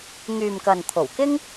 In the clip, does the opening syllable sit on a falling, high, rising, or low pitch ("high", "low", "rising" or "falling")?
low